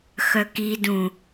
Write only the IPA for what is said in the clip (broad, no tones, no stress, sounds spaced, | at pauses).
x œ k i d ũ